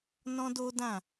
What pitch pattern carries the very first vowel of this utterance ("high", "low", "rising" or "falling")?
high